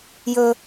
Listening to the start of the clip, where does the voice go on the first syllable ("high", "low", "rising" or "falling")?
high